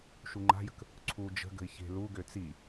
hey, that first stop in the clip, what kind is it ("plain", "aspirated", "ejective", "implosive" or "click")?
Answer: click